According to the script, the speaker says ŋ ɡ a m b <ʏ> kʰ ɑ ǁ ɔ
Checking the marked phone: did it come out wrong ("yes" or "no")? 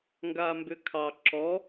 no